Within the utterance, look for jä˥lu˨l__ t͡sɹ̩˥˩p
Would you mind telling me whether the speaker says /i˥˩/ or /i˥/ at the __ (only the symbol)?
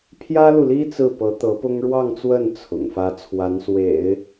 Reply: i˥